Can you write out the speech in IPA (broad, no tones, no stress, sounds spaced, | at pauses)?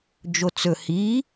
d͡ʒ o t͡s ɵ h i